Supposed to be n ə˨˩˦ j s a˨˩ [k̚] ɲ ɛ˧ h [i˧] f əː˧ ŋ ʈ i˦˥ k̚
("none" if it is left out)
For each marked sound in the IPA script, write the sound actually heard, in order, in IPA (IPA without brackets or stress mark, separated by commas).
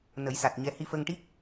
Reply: t̚, i˧